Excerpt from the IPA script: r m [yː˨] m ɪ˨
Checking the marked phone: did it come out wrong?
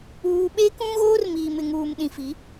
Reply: yes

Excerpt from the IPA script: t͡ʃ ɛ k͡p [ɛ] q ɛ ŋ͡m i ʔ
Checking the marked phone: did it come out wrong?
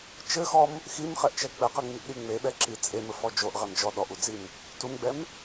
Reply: yes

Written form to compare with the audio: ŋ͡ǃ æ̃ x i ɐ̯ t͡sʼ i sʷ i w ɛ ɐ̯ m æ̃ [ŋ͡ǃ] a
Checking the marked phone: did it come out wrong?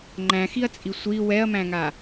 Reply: yes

